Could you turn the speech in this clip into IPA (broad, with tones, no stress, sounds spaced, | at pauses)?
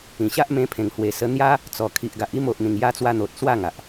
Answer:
ĩ˨˩ ɕ a˦ ʔ m ẽ˧ pʰ ẽ˨˩ ŋ h w e˨˩ s ə˧ n̪ j a˦ | t͡s ɔ˨˩ kʰ i˨ ʔ ɡ a˨ ʔ i˥˧ m o˨ ʔ n̪ ĩ˨˩ ŋ j a˧ t͡s w a˧ n̪ o˨ t̚ s w a˥˧ ŋ a˨ ʔ